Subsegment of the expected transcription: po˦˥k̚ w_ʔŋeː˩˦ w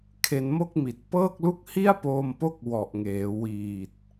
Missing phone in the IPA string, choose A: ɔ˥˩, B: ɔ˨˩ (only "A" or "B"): B